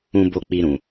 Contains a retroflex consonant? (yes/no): no